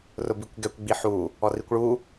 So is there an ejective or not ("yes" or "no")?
no